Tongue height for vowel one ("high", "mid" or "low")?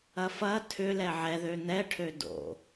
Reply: low